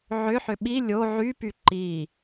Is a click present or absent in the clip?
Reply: present